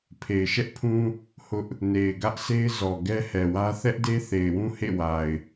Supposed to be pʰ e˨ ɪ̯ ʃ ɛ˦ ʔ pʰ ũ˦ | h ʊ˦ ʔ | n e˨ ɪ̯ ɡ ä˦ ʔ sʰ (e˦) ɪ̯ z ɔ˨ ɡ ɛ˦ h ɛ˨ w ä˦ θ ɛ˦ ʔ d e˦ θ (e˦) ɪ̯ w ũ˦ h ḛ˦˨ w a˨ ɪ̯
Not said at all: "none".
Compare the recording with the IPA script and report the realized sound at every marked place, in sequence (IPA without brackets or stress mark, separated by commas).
e˦, e˨